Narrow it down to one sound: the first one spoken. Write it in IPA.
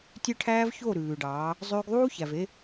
tʲ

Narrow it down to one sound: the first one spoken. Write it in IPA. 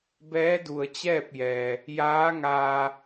b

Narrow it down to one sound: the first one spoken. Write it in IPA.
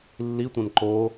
lː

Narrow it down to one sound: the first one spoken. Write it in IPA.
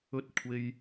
ɵ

